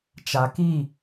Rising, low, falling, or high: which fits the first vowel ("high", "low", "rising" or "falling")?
low